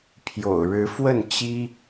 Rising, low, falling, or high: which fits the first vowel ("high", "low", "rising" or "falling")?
low